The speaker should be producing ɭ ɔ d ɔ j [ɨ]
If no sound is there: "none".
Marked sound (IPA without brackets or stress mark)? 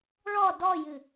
ɨ